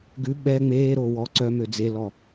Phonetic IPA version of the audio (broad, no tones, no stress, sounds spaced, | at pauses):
ɡ ʉ ɓ ɛ ŋ͡m eː ɾ o w ɔ ǀ œ m ø d͡z e l ɔ